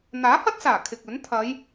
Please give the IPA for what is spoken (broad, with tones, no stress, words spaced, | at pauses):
n̪aː˨˥hɐ˥t̚saː˨˩ kʰɪ˨k̚ɵ˨˥n t̪ʰɐ˨˧j